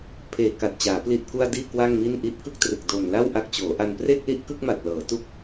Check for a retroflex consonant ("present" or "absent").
absent